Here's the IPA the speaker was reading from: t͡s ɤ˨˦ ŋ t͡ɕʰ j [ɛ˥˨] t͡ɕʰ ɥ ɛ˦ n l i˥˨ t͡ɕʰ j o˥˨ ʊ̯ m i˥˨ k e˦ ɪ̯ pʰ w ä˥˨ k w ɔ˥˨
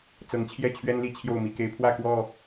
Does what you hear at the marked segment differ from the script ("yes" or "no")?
no